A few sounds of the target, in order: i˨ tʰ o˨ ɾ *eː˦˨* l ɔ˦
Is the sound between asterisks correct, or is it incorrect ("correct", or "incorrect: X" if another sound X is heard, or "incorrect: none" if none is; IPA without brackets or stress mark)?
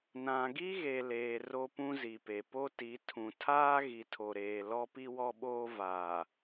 incorrect: eː˨